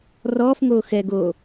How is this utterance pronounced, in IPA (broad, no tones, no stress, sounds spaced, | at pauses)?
r ɔː f ŋ oː x ɛ ɡ o